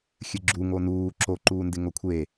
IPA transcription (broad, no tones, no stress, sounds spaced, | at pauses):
xʲ ɨ ɡ͡ǁ u ŋ o n uː ǁ o ǃ uː n d ɪ ŋ o kʷʰ e